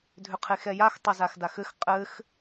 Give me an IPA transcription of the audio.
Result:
dʱ ʏ qʰ e x ɛ j a x tˤ ɘ z a x d a x ɘ x qʼ ɘ x

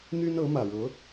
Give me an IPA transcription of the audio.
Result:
n̪ y˥ n ɤ˧˥ m ä˨˩ ɻ ɤ˧˥

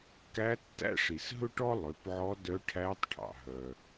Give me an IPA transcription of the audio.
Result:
k æ˧˥ tː æ̰˥ ʂ i˩ s ɦ ɵ˥ ʈ ɔ˥ lˠ ø˩˧ p ʕ ɔ˧˥ d œ˧˥ ʈʰ æ˧˥ tˤ ʈʰ ɑ̰˩ ɦ œ˩

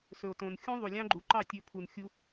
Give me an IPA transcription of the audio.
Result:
s ɵ˨ o̯ t õ˨ n xʲ ũ˦ ðˤ u˨ lʲ ɑ̃˦ ɡ͡ǃ u˨ ǃ ɑ˦˨ tʲ ɵ˧ pʰ u˨ n xʲ u˧

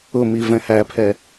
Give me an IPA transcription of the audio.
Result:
ʊ m i v ɛ̃ h æ pʰ ɛ

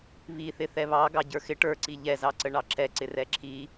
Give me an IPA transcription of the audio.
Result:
β i θ ɪ θ ɛ β ɑ ɡ ɑ ɟ ə˞ x ɪ ʈ ə˞ ǀ i ʎ ɛ z ɑ ǀ ə ɳ ɑ ǁ ɛ ǀ ɪ r ɛ ǁʰ i

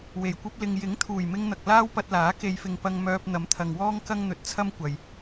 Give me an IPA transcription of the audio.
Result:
w e˨˩ j kʷ ɐ˥ p̚ l ɪ˧ ŋ j ɪ˨˥ ŋ t̪ʰ uː˨˩ j m ɪ˧ ŋ n̪ ɐ˨ k̚ l aː˥ w p ɐ˧ t̚ l aː˨˥ k e˨˧ j f ɪ˨ ŋ p ɐ˧ ŋ m œː˧ p̚ n̪ ɐ˨˥ m t̪ʰ ɐ˨ ŋ w ɔː˥ ŋ k ɐ˥ ŋ n̪ ɵ˨˥ t̚ t͡sʰ ɐ˥ m kʷ ɐ˨ j

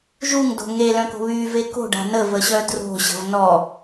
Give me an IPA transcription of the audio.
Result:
ʒ u ŋ d o̤ ŋ e l œ̃ k o̤ β y v e k o̤ ɖ a̤ n ə v ə ɕ œ d r o̤ ɕ ə̤ v n ɔ

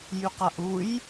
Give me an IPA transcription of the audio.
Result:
j y q a ʔ u j

